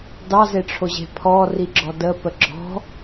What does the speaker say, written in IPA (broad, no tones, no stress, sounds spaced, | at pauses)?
d ɑ z e ʈ͡ʂʰ o ʑ e̤ pʰ ɔ r i ɡ͡ǁ ɔ d ə p ə ɡ͡ǁ ɔ̤